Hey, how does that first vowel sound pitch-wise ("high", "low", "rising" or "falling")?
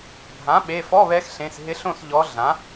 rising